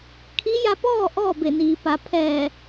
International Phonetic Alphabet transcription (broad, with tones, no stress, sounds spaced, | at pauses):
kʰ i˧˥ j a˧ p ɔː˥˨ ʔ ɔː˥˨ b e˧˩ n iː˩ p a˩˧ pʰ ɛː˧˩